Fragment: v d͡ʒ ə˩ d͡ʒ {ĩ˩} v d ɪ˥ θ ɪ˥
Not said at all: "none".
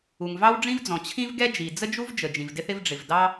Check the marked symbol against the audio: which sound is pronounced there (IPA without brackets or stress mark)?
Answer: ĩ˩